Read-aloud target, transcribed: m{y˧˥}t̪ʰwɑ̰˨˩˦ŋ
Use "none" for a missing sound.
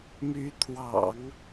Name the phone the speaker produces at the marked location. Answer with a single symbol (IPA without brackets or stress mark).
y˧˥